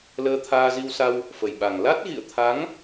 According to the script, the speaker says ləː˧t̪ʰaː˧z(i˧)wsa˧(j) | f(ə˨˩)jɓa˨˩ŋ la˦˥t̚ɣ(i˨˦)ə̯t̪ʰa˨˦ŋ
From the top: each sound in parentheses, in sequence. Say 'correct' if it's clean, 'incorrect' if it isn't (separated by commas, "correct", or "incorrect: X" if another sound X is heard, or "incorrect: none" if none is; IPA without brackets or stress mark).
correct, incorrect: w, correct, incorrect: ḭ˧˨